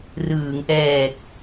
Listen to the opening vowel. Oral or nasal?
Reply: oral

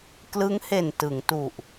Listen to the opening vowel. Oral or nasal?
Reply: oral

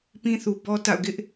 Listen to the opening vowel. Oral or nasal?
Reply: nasal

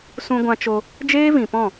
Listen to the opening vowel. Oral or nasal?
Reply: nasal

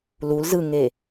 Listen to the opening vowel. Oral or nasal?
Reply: oral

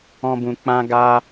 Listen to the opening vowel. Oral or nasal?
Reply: nasal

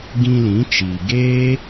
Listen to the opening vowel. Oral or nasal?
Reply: nasal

